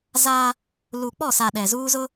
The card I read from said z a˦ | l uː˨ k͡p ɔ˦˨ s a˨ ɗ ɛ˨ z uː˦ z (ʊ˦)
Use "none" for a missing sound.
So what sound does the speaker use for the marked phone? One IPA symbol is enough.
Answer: ʊ˦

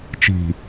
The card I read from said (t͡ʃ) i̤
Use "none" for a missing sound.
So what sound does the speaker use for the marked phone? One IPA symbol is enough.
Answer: t͡ʃ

